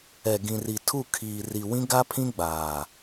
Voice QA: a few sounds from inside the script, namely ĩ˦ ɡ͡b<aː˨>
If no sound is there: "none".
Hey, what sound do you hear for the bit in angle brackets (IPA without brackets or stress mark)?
aː˨